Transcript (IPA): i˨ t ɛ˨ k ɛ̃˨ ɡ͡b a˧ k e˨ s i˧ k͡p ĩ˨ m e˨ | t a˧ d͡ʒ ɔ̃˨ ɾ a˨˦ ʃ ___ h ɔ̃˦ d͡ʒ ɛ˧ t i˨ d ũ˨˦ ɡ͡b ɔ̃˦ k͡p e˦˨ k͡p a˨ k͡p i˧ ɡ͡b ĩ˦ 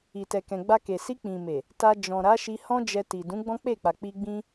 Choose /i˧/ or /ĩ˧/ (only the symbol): i˧